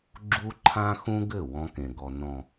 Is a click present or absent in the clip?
present